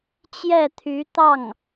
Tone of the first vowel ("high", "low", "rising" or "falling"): falling